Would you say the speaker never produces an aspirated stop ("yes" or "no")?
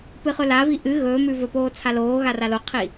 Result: no